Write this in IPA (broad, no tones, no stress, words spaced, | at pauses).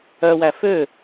œwæ fø